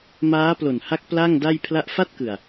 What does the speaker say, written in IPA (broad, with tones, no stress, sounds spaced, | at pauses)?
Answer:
m aː˦˥ p l o˨˩ n h a˦˥ k̚ p l a˥˩ ŋ d a˥˩ j pʰ l a˦˥ ʔ f a˥˩ t̚ k ɯ˨˩ a̯